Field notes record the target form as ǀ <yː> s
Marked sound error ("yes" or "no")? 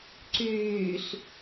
no